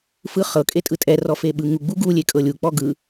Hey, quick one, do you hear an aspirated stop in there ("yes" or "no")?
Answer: no